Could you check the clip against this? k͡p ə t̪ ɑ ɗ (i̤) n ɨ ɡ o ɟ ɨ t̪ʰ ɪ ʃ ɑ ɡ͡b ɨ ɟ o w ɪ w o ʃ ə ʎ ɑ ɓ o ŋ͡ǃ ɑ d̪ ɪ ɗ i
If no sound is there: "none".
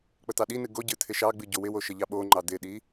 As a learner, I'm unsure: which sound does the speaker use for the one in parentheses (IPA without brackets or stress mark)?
i